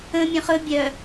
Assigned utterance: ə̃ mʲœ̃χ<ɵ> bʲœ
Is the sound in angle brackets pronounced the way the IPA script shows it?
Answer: yes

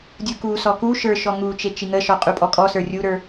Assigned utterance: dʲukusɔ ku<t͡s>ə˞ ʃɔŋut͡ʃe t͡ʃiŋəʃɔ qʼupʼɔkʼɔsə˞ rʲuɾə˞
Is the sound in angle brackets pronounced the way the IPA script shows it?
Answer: no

